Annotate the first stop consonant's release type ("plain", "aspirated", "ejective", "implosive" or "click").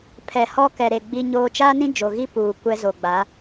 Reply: aspirated